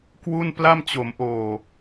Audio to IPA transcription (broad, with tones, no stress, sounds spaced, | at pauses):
k w u˥˩ n p l a˥˩ m t͡ɕ o˩˦ m ʔ oː˨˩